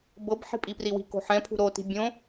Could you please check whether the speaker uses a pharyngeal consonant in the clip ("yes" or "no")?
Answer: yes